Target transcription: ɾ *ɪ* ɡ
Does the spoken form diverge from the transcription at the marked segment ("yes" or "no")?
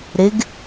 no